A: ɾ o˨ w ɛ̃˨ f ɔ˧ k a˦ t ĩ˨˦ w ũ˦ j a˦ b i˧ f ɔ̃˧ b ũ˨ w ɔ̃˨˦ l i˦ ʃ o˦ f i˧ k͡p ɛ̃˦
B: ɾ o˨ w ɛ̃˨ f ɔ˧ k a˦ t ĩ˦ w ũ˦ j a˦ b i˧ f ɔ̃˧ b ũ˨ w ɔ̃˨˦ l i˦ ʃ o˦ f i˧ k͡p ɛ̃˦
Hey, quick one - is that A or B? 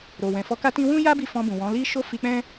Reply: B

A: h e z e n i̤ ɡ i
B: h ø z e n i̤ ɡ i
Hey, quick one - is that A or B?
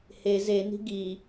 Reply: A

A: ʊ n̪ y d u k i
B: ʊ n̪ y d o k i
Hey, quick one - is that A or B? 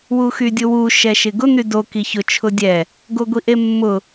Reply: B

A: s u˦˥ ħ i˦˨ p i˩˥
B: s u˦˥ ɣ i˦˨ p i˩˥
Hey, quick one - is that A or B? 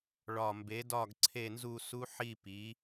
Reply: A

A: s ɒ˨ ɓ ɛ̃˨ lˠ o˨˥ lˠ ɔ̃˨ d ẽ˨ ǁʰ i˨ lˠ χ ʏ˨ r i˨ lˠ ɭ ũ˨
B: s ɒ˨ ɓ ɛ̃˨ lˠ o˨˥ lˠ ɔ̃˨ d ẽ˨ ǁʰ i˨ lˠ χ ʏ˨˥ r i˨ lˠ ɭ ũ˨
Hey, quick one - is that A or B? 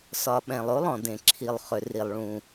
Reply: A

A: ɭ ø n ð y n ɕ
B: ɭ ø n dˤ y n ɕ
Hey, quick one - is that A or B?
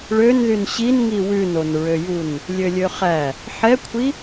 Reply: A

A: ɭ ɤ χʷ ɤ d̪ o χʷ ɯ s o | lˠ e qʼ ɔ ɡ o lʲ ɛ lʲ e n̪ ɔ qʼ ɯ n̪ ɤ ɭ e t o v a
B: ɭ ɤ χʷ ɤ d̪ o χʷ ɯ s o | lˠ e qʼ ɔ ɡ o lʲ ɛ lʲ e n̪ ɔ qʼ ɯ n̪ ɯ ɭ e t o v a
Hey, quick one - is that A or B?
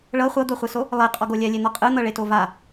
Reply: A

